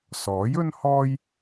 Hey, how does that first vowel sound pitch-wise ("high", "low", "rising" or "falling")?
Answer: rising